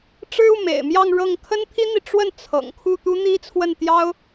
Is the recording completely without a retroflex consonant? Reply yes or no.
no